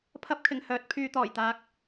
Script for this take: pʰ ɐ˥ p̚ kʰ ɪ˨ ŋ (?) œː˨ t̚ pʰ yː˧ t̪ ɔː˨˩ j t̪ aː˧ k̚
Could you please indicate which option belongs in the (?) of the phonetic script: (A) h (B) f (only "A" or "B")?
A